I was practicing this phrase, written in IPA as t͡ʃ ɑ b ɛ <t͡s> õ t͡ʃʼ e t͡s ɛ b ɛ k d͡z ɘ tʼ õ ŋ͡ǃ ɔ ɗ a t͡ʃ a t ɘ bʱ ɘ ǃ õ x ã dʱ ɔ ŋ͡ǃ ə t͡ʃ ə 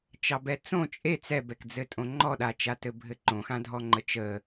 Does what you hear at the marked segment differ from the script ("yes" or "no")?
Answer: no